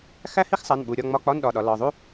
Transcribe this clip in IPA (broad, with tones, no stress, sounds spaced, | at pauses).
x æ˥ h i˥ x sˤ æ˩˧˩ n ɓ u˩˧˩ ɾʲ ɒ˥˨ ŋ͡m ɒ˧˥˧ k͡p ɒ˧˥˧ n ɗ ɒ˩˧˩ ɗ ɒ˩˧ l ɒ˩˧˩ ðˤ u˥